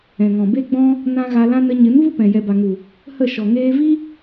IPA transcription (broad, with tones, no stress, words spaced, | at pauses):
ɛ̃˨ŋɔ̃˨ be˦ɡ͡bɔ̃˦ | nã˦ ɣa˧lã˦ nə˧ ɲɨ˨˦nvu˦ pɛ̃˨ jɛ˨ba˨ŋu˨ | hə˦˨ʃɔ˨ ŋeː˧vi˦